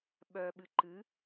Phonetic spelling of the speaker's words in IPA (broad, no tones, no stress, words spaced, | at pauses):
ɓœɓɨ ǃɨ